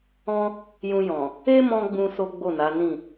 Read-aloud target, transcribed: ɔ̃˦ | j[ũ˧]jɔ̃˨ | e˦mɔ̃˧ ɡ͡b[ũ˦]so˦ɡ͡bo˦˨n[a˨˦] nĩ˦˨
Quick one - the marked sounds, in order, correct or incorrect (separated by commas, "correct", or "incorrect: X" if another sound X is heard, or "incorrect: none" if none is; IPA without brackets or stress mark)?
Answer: correct, correct, correct